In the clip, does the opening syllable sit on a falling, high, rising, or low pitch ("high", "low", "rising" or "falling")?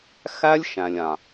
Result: high